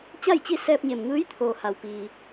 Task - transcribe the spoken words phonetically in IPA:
t͡ɕ a˥˨ j t͡ɕ i˥˨ s ɛː˧ p̚ ɲ e˩ m ŋ ɯː˧˥ j t̪ʰ oː˩ h a˩ w p iː˩

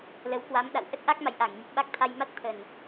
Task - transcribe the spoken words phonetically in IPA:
l ə˨˦ w k w a˨˦ m ɗ a̰˧˨ w ʔ ə˦˥ t̚ ʔ a˦˥ k̚ m a̰˧˨ j ʔ a˧˩ ŋ ɲ ə˨˩ t̚ ɓ a˦˥ k̚ t̪ʰ a˧ j m a˦˥ t̚ t̪ʰ ə˨˩ n

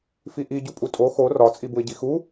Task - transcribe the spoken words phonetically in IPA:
f i ʔ i ɟ u pʼ u tʼ o x o r ɒ t͡sʼ i b u ɪ̯ ɟ i x u

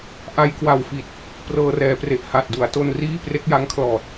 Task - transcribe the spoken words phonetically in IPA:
ʔ a˧ j k w a˨˩ w f i˨˩ t̚ | p r ɤː˧ r ɛː˩˦ p r e˨˩ ʔ h a˨˩ t̚ d u˩˦ a̯ t o˧ n r iː˥˩ p r e˦˥ k̚ j a˦˥ ŋ kʰ l ɔː˨˩ t̚

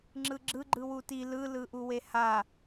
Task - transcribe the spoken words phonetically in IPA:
ŋ͡ǁ ɯ ɡ͡ǁ ɯ ɡ͡ǃ ɯ w u t i l ɯ l ɯ ʔ u w e h a

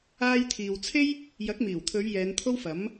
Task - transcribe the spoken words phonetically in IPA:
aː˧ j t̪ʰ iː˨ w t͡sʰ e˥ j | j ɐ˨˥ k̚ m iː˨˩ w t̪ʰ ɵ˨˧ ɥ j ɛː˨˧ n t̪ʰ o˥ w f ɐ˨˥ m

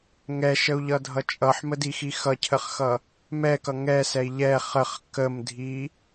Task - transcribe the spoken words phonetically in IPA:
ŋ ɛ ʃ ə u̯ ʎ ʌ dʱ ʌ t͡ʃʼ ʌ ħ m ə d i x i x ʌ cʰ ə χ x ʌ | m ɛ k ʌ ŋ ɛ s ɛ i̯ ʎ ɛ χ ə χ k ə m dʱ i

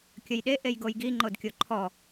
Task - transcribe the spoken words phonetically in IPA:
kʲ ə j ɗ e ʔ e j ɡ o j ɡ i ŋ͡ǃ o d kʲ o ǃʰ ɔ

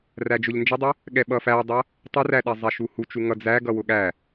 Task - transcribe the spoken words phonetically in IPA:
r æ d͡ʒ ʊ ʎ n d͡ʒ ə dˤ ʊ | ɠ ɛ ɓ ʌ f æ dˤ ʌ | tˤ ə r æ ɗ ɛ zˤ ɛ ʃ u h u t͡ʃ u ŋ ʌ d͡z æ ɡ ʌ w ʊ ɠ æ

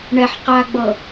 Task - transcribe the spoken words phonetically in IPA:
ɳ ɛ ħ q a ɡ͡b ɤ

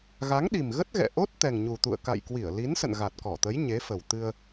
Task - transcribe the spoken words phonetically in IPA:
ɣ a˨˦ ŋ ɗ i˨˩ m ɣ ə˦˥ t̚ ɣ ɛ̰˧˨ ʔ o˦˥ t̚ t̪ ɛ˨˩ ŋ ɲ u˨˩ t̪ ṵ˧˨ ə̯ k a̰˧˨ j k w i˧˩ ə̯ l i˨˦ n s ə̰˧˨ n ɣ a˨˩ t̚ k ɔ˧˩ t̪ ə˨˦ j ɲ e˨˦ f ə˨˩ w t̪ ɨ˧ ə̯

